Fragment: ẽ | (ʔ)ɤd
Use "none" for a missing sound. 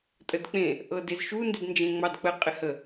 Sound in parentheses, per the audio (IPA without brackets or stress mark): ʔ